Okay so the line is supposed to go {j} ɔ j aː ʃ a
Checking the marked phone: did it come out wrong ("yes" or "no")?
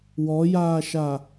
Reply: yes